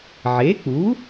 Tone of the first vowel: rising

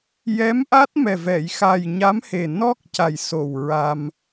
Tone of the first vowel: rising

